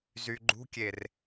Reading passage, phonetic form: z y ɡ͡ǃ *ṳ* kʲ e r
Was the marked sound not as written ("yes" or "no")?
no